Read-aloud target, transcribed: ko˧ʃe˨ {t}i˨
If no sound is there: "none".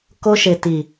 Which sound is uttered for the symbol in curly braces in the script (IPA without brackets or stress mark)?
t